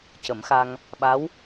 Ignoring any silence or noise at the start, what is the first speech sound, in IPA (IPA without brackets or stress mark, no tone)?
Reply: c